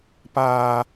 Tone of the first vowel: high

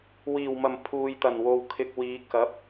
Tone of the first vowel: low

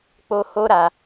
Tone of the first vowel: high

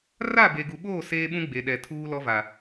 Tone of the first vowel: falling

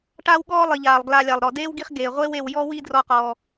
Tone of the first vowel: high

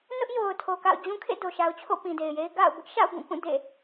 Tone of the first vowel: high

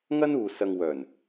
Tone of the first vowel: high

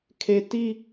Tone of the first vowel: low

